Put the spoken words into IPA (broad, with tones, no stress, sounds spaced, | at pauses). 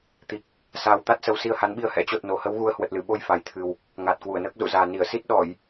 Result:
t̪ i˨˩ k̚ | s aː˧ w t̪ a˦˥ t̚ s ə˨˦ w s i˧ ə̯ h a˨˦ n ɓ i˧ ə̯ h ɛ̰˧˥ t͡ɕ o˨˩ t̚ n o˨˩ h ə˨˦ w ɣ u˨˦ ə̯ h w ə˨˩ t̚ l ɨ˧˩ ɓ o˧ j f a˨˩ j t̪ʰ ɨ˨˩ w | ŋ aː˨˩ t̚ k w u˧˩ ə̯ n əː˦˥ k̚ z ṵ˧˨ z aː˨˩ n i˧˩ ə̯ s i˦˥ t̚ ɗ ɔ˧˩˨ j